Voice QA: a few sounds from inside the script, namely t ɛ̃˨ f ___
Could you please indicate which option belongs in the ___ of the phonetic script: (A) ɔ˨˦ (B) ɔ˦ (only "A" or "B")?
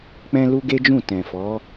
A